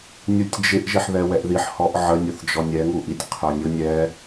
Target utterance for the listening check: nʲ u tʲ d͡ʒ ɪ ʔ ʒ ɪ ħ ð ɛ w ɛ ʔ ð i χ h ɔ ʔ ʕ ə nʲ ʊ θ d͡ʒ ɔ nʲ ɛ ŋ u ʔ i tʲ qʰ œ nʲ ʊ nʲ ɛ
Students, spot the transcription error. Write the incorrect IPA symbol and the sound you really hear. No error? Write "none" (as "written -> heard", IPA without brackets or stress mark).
χ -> ħ